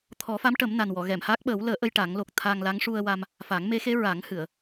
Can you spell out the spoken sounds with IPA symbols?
t̪ʰ ɔ˨˩˦ f a˧˥ m ʈ ə˨˩˦ m n a˨˩ n w ɔ˨˩˨ ɣ ɛ˨˩˨ m h a˦˥ k̚ ɓ əː˨˩˦ w l əː˨˩˦ ʔ ə˧ j ʈ a˨˩˦ ŋ l o˨˩ k̚ t̪ʰ aː˧ ŋ l a˧˥ ŋ ʂ u˧ ə̯ w a˧ m | f a˨˩˦ ŋ m e˧˥ x e˧˥ ɹ a˨˩˦ ŋ h ɨ˨˩˨ ə̯

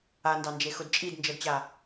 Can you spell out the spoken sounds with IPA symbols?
a n d ɑ n d͡ʒ e x ʊ d t͡ʃʼ i d n d͡ʒ ɤ d t͡ɕ a

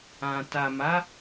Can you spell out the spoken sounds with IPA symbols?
ã˨ t a˨ m a˨˦

